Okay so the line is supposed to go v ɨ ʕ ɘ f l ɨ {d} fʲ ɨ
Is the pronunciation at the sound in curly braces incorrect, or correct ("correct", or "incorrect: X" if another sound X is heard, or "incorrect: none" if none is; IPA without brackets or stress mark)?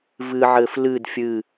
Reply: correct